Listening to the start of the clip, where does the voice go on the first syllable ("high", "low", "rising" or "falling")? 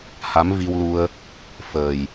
rising